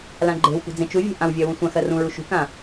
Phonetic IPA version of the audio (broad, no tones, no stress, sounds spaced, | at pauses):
l ã ɡ͡ǃ e̤ w p ṳ d͡z ẽ t͡ʃ u vʲ e̤ ʔ ã w vʲ ɜ w ũ sʷ ã x ɜ r ũ ɹ u ʃ ṳ k ã